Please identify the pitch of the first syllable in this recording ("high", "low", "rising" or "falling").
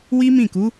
high